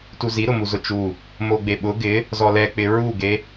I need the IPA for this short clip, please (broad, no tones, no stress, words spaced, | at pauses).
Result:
tuzi ɾʊmuzʊt͡ʃu | moɡ͡beɓʊ ɡɪ | zɔlɛk͡pɪ ɹuɡe